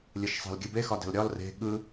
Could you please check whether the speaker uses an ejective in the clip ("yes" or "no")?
no